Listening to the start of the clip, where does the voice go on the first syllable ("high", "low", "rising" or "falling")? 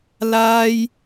high